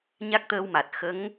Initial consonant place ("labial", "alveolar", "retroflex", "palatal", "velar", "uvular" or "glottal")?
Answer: palatal